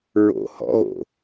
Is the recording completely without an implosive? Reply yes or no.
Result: yes